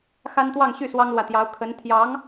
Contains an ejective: no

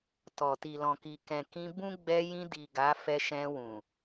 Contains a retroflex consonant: no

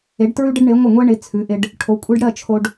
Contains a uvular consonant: no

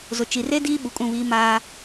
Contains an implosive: yes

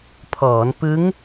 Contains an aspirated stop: yes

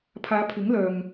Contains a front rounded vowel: yes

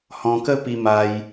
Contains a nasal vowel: yes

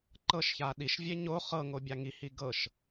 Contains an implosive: yes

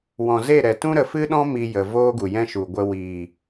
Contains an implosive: yes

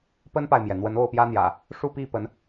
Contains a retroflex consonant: yes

